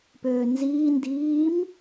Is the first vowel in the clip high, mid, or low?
mid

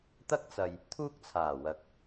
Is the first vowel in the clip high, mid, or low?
low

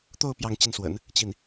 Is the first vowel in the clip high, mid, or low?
mid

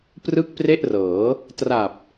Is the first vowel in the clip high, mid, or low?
high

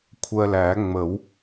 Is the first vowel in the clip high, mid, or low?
mid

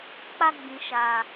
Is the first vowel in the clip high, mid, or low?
low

